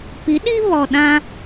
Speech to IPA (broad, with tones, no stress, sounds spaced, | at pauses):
p i˨˦ ɗ i˦ β ɔ˨ ɗ ã˦